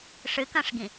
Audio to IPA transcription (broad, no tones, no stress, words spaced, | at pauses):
ʂɨkɐ̃ʂɡĩ